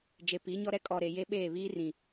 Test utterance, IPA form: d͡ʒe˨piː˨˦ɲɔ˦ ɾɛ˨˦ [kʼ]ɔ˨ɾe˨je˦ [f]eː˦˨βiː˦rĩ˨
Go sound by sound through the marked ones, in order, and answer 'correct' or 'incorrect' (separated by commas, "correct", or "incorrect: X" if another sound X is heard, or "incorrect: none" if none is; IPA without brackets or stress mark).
correct, incorrect: ɓ